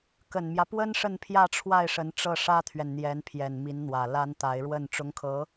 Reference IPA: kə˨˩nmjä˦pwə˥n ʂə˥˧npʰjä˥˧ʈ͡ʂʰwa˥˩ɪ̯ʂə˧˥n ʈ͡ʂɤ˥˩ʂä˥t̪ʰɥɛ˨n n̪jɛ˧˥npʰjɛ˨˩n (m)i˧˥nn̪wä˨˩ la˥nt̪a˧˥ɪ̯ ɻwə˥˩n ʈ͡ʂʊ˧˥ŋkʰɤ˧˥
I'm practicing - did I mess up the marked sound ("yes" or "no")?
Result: no